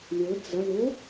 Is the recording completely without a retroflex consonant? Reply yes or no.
no